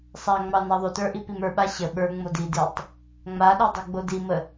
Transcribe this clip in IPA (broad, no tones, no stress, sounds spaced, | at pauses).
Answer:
sˤ a ŋ͡m ɑ n ɑ ðˤ o t ə˞ ʔ i p i m ə˞ ɓ a ɕ ə ɓ ə˞ ŋ͡m o d i d i tˤ | ŋ͡m a ɗ o dˤ i ɡ͡b o d i m ə